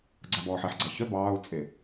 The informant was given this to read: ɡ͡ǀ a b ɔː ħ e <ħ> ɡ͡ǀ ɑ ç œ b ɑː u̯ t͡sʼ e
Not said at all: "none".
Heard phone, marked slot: ħ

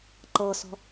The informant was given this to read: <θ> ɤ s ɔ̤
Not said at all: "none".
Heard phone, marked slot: ǃ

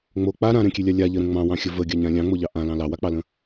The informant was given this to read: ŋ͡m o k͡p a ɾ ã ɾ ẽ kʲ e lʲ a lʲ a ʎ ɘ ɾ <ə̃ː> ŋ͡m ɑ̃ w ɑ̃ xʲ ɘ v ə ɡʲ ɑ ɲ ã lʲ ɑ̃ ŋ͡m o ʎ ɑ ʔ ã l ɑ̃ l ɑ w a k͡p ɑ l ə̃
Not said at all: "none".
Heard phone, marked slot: ə̃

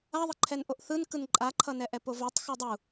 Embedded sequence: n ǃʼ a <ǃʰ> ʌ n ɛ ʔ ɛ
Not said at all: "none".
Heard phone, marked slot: ǃʰ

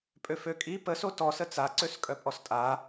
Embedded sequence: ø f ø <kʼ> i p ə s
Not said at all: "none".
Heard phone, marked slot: kʼ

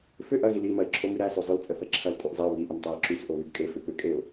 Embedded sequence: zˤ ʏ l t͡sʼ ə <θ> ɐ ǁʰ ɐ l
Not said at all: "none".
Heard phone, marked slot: θ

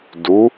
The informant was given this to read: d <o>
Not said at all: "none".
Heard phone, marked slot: u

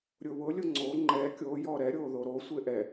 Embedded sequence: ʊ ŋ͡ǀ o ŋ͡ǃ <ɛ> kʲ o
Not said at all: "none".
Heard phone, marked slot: ɛ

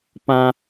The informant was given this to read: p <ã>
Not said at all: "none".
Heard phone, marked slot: ã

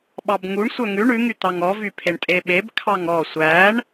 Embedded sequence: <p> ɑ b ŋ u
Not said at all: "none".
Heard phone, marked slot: ɓ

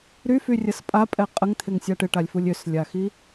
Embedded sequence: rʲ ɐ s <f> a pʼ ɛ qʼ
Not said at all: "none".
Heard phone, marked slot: pʼ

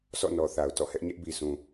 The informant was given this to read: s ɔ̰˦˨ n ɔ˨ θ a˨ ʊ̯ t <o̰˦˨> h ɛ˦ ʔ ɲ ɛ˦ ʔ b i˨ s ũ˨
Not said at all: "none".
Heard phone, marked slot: ɔ̰˦˨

